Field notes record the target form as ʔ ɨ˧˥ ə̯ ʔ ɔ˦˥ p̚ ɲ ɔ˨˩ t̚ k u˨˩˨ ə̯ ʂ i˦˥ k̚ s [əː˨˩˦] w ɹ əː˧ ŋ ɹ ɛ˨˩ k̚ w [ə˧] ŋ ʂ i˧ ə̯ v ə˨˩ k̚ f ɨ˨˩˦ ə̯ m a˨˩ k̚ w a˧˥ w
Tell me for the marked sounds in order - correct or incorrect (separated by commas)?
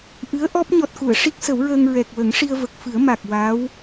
incorrect, incorrect